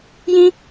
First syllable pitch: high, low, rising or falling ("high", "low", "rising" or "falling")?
high